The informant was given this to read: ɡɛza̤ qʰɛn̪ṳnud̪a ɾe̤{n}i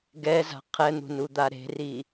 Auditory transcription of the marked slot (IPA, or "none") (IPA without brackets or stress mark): r